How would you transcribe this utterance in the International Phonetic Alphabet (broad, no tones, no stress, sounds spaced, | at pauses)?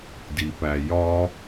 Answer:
d i p æ j ɒ